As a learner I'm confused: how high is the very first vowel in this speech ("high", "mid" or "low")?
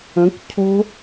mid